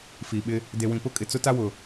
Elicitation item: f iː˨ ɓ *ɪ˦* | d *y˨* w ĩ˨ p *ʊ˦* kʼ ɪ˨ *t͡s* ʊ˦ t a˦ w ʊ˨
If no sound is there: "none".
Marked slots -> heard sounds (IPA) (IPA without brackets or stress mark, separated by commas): ɪ˦, e˨, ʊ˦, t͡s